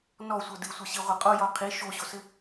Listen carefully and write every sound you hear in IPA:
n ɔ sʷ ɤ d ɨ sʷ ɤ ɕ i ʁʷ ɘ qʼ o j ɔ qʰ i ʃ o ɕ o s ɘ

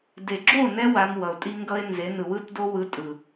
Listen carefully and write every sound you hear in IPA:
d e˨ ɡ͡ǁ o˦˨ n ɛ˧ w a˧ m w ʌ˨ ʊ̯ tʼ i˦ ŋ ɡ ʌ˦ ɪ̯ n z e˨˦ n ɯ˨ w ɯ˦ t d o˦ w ɯ˧ tʼ ɯ˨

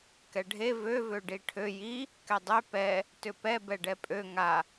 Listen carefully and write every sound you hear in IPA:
k ɛ ɖʱ e v ø v ø ɖ i ʈʰ ø j i | k ɛ dˤ ø p ɛ | t ʏ p ɛ b ɛ ɖ ɛ pʼ ø ŋ a

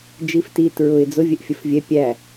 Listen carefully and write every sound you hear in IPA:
d͡ʒ i f t i t ɹ ʊ ɪ̯ d͡z ʊ vʲ ɛ ʔ fʲ ə f vʲ ɛ pʲ æ

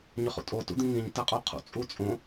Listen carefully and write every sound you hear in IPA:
ɲ ʏ χ ṵ tʼ o t ṵ d̪ ĩ ŋ ĩ ɲ t ɛ qʼ u qʰ ṵ t͡sʼ u t͡sʼ õ

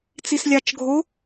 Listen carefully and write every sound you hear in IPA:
t͡s i s lʲ ɑ t͡ʃ ɡʱ o

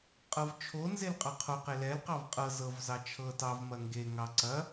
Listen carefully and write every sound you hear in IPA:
qʼ ɤ v t͡ʃʰ o n z e l qʼ ɑ qʰ o q e l ɛ l q ɑ v qʼ ɤ z ɤ v z ɑ t͡ʃʰ ɤ t ɑ v m ɐ ŋ ɡ e ŋ ɑ ǀ ɐ

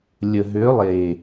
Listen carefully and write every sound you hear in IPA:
lʲ ə˨ ɦ ø˨˦ lˠ eː˨

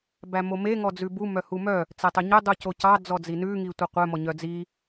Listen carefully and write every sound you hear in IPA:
b æ m o m e ŋ ɔ d͡z ʉ b u m œ h u m œ | t͡s ɛ tˤ ø ɲ ɵ dˤ u c o c ɑ d͡z ɔ d͡z i n ʉ ŋ i tʷ e qʷ œ m ɔ ɲ œ d͡z i

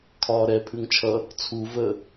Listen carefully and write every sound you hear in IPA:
kʰ ɒː ɾ ɛ pʰ ʉ ŋ t͡ʃʰ ʌ | t͡sʰ u v ə

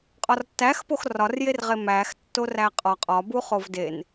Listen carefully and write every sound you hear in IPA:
qʼ ɒ r tː æ x p o x r ɒ r j e r ʁ e m æ x tː o r æ qʼ ɒ qʼ ɒ b u χ o v d e n

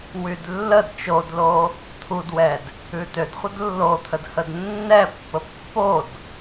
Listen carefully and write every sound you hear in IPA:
w y d lː ə d t͡ʃ o d l o | t̪ʰ u d w ɛ d | ʉ t ø d χʷ ə d lː o t̪ʰ ə d h ə d nː ɛ pː ə pː o d

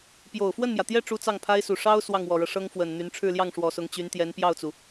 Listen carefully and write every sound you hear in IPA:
p j o˨˩ ʊ̯ f w ə˥˩ n m j ä˩ t̪ j ɛ˥˩ ʈ͡ʂ u˥ t͡s ɑ˥˩ ŋ pʰ a˥ ɪ̯ s u˨˩ ʂ ɑ˥ ʊ̯ s w ɑ˥˩ ŋ w ɔ˨˩ ɻ ɤ˦ ʂ ɤ˥ ŋ f w ə˨˩ n n̪ y˧˥ n ʈ͡ʂʰ ɻ̩˥˧ l j ɑ˥˩ ŋ ʂ w ɔ˨˩ s ʊ˧˥ ŋ t͡ɕ y˧˥ n t̪ j ɛ˧˥ n p j ɑ˥˩ ʊ̯ t͡s u˩

